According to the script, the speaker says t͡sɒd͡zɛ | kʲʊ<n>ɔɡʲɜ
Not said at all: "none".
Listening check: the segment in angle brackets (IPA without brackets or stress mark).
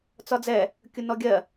n